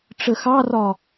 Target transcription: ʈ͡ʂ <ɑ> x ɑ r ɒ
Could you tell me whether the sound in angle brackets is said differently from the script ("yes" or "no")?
yes